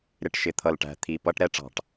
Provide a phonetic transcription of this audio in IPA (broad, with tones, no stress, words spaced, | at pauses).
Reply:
ɾɪ˨˩ʈ ʃɪ˨˩t̪ʰʌ˨˩lʈæ̤˨˩ t̪ʰi˨˩pʌ˧˥ʈ ɾɛ˧˥ʈ͡ʂɑ̤˧˩˧ʈ